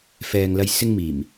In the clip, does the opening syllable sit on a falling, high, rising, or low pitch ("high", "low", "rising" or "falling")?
low